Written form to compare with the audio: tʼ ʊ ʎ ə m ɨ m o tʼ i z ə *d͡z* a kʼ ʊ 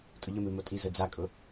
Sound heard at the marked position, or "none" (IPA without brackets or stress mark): d͡z